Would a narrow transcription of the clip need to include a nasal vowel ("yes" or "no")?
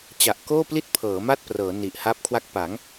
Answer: no